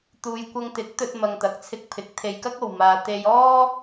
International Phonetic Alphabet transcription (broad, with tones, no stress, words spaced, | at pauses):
t̪uː˨jkʷɐ˧ŋt̪ɪ˨˥k̚ t̪ɵ˧t̚mɐ˨ŋt̪ɐ˨˥k̚t͡sʰɪ˧k̚ pʰɪ˨˥k̚ t̪ʰe˧jkɐ˥k̚o˨w maː˧ t̪e˧jɔː˥